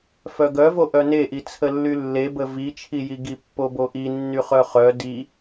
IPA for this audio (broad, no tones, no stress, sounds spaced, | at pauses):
f œ ɡ œ v o ʔ œ n e ʔ i t͡sʰ ə lː y lː e b ə v i t͡ʃʰ i j i ɡ i pː o b o ʔ i nː y χ œ χ œ d i